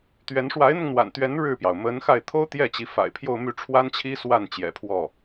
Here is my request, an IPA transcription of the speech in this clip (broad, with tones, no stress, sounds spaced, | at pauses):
t̪ ɥ ɛ˧˥ n ʂ w a˧˥ ɪ̯ n̪ ʊ˧ ŋ n̪ w a̰˨˩ n t̪ ɥ ɛ˧˥ n ɻ ɻ̩˥˩ p j ɑ˩ ʊ̯ m ə˧˥ n x a˥˩ ɪ̯ t̪ʰ o˥ ʊ̯ t̪ j ɛ˥˩ t͡ɕ i˧˥ f a̰˨˩ ɪ̯ pʰ j o˥˧ ʊ̯ m y˥˩ ʈ͡ʂʰ w a˥ n t͡ɕʰ i˥ s w a˥˩ n t͡ɕ j ɛ̰˨˩ pʰ w ɔ˥˩